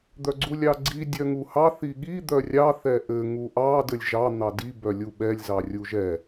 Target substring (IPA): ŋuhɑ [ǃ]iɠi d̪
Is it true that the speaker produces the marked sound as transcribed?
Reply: no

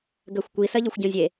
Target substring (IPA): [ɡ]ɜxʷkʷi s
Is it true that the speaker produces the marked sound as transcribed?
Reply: yes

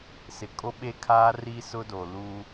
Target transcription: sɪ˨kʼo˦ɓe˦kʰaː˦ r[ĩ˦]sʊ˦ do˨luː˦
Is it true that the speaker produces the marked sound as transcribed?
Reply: no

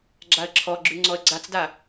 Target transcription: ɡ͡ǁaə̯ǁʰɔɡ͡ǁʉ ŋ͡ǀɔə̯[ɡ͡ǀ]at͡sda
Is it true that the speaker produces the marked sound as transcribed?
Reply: yes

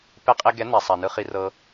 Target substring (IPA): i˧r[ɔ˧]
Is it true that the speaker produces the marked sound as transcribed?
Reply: no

